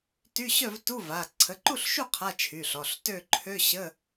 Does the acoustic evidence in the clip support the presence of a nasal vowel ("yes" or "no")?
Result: no